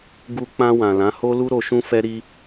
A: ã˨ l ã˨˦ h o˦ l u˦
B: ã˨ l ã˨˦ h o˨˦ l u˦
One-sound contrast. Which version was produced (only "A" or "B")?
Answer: A